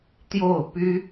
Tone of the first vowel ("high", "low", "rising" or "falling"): falling